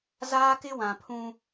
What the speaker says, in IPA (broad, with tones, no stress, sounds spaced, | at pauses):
z aː˦ k ɪ˦ w ã˨ pʰ ũ˦